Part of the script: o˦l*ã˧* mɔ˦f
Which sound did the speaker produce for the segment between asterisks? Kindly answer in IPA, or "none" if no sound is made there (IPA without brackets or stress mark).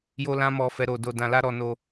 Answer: ã˦